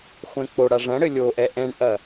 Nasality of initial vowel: nasal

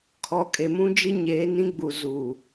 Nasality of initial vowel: oral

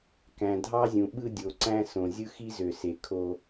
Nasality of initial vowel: nasal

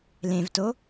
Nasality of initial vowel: nasal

